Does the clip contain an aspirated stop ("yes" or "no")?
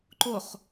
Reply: no